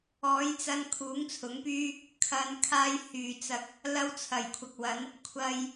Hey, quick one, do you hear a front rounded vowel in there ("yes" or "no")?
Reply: yes